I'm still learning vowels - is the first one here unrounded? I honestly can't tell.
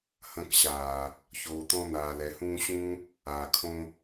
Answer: yes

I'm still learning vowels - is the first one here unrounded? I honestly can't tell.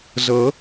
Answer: yes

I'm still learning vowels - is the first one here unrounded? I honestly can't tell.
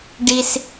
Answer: yes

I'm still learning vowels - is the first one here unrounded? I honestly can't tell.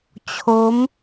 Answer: no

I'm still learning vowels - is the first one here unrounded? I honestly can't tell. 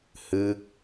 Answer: yes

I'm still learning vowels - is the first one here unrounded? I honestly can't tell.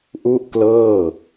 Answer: no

